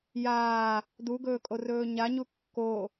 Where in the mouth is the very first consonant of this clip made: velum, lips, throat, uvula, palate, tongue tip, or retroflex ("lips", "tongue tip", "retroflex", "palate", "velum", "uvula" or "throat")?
palate